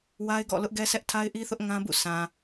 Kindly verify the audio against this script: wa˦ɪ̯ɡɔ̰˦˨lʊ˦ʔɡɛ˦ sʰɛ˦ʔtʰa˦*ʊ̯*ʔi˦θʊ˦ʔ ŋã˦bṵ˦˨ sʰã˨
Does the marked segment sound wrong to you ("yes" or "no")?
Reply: yes